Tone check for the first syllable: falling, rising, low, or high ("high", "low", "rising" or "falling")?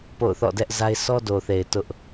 falling